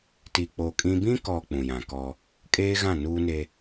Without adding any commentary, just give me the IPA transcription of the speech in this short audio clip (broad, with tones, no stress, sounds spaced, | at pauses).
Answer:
t i˨ k͡p o˨ kʼ ĩ˦ b ĩ˦ k ɔ˨ k͡p ũ˨ j ã˨ k ɔ˦ | kʼ eː˦ ɣ ã˦˨ n uː˦ n e˦